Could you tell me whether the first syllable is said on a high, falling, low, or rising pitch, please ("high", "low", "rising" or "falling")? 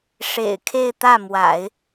low